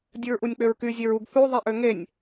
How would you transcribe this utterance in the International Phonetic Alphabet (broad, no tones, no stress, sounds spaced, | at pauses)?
dʲ ɯ ɹ ʔ u nʲ k͡p ø ɹ k y zʲ e ɹ u ɡ θ u ðˤ i ʔ ø ŋ e nʲ